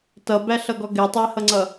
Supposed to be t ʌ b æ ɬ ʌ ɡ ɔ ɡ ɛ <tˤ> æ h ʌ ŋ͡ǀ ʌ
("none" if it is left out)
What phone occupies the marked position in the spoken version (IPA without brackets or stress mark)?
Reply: tˤ